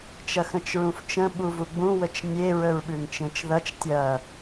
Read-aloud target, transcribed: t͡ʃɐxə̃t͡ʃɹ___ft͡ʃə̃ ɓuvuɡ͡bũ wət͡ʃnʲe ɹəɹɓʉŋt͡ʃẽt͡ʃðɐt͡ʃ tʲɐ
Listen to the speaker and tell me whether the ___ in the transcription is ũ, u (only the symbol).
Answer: ũ